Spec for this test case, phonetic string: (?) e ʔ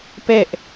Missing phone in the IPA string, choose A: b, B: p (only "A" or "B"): B